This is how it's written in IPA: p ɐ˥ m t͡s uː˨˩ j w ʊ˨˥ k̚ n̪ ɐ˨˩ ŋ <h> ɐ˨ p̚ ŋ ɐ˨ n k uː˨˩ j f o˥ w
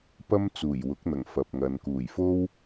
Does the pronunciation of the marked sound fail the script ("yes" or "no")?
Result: yes